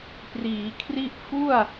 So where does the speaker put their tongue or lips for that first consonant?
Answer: lips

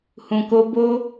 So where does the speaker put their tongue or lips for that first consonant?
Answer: throat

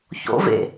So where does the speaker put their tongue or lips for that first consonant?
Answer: palate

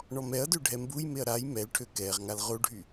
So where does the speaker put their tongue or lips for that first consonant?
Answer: retroflex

